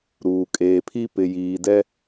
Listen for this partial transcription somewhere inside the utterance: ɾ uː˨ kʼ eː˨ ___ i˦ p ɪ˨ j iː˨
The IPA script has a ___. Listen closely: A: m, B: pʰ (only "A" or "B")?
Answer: B